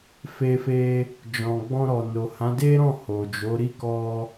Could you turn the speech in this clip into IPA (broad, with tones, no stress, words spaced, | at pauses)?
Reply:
fe˧fe˧ | d͡ʒɔ̃˨ɡ͡bɔ̃˧ɾɔ˨no˨ hã˨˦de˦ɾɔ̃˦˨ ho˨d͡ʒo˨˦ ɾi˦˨kɔ˧